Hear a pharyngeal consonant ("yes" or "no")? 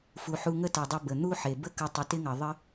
yes